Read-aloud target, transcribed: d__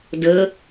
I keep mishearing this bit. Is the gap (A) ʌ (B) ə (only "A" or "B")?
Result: B